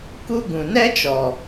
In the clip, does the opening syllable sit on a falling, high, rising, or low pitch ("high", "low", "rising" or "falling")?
high